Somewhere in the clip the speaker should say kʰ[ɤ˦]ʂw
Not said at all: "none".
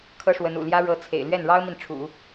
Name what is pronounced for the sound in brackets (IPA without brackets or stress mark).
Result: ɤ˥